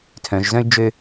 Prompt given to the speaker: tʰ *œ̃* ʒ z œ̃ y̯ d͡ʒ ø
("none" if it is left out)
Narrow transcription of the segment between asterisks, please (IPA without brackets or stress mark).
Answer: œ̃